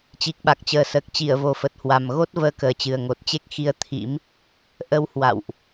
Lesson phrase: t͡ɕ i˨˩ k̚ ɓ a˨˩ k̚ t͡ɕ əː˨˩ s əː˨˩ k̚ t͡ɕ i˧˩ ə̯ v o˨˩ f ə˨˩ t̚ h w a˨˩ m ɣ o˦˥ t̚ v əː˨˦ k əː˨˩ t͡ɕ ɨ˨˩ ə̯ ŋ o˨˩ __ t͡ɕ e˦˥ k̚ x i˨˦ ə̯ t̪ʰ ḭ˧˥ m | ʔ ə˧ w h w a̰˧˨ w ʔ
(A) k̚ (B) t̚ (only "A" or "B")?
B